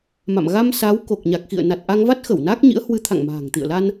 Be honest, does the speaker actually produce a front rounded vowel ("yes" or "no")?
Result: no